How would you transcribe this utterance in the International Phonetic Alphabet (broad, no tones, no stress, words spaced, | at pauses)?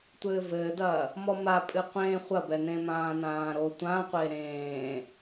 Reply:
tʷɘːvɘːdɐː | mɔmapʼɨ qʷẽːχʷɐbɛ nẽmãːnãːɾo tʷãqʷe ɾẽː